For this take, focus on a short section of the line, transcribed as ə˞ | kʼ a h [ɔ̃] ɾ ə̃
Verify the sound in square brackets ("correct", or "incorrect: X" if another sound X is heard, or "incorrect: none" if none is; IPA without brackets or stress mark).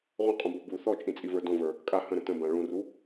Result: incorrect: ə̃